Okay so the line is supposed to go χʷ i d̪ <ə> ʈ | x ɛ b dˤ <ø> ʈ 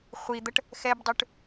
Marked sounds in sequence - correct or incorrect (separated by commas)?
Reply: correct, correct